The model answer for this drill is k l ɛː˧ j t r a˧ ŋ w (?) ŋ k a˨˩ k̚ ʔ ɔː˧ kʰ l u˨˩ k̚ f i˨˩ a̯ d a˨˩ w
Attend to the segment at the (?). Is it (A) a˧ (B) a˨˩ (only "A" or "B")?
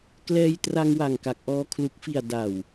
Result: B